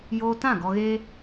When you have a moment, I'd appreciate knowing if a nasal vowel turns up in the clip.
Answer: yes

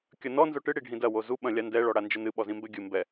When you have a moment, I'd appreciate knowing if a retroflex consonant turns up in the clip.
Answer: yes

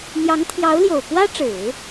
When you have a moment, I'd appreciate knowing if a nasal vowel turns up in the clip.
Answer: no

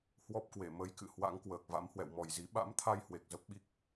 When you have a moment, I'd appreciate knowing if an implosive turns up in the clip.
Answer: yes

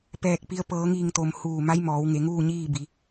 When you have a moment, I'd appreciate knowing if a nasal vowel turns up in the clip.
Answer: no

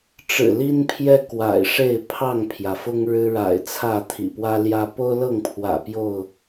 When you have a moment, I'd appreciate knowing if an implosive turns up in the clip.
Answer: no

